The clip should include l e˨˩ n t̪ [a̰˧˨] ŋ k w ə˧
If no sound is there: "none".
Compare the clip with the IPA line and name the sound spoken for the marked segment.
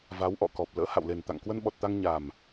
a̰˧˨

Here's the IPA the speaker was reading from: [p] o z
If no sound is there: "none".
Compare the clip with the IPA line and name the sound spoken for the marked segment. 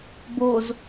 b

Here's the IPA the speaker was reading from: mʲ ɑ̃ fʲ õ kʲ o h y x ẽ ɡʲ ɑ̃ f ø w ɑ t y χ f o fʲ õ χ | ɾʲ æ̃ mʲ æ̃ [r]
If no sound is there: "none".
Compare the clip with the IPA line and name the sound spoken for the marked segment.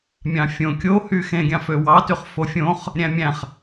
χ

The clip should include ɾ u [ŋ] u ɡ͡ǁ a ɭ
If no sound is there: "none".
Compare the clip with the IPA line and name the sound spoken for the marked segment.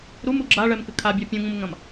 m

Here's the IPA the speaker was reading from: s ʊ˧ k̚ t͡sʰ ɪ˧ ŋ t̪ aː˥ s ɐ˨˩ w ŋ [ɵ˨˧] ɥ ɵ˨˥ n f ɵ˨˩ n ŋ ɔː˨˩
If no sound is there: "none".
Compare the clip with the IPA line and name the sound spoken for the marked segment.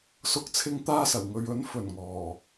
ɵ˨˧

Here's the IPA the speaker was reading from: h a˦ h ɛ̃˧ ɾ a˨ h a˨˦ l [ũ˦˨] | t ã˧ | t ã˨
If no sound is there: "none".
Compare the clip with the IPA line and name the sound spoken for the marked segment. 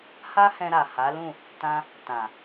ũ˦˨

